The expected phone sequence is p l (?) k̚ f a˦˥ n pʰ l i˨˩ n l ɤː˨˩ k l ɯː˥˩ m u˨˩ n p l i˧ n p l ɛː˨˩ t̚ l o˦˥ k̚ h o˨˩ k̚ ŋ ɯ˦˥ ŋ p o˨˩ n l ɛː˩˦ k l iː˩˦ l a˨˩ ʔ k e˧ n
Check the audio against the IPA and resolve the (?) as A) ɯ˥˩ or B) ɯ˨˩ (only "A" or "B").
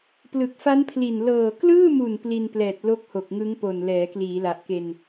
B